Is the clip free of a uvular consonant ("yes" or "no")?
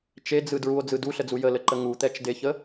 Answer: yes